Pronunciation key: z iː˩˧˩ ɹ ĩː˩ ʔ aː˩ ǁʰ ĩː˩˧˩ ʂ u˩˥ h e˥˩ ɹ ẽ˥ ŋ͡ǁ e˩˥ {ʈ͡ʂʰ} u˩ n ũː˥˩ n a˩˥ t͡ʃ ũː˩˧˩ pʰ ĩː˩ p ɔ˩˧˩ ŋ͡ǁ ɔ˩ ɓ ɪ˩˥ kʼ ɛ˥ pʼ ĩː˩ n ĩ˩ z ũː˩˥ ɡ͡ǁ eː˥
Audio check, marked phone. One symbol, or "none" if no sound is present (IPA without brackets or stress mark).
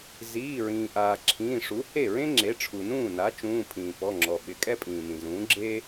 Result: ʈ͡ʂʰ